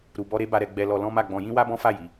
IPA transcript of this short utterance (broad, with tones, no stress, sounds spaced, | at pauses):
ɾ u˧ b ɔ˦ ɾ e˦ b a˦ ɾ ɛ˦ ɡ͡b ɛ˧ l ɔ˧ l ɔ̃˦ m a˦˨ ɡ͡b ɔ̃˧ j ĩ˦ w a˦ b ɔ̃˦ f a˦˨ j i˨˦